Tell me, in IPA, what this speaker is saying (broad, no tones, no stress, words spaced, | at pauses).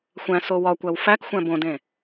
xʷæ̃so wɒkʷæw fækxʷæ̃ bõdẽ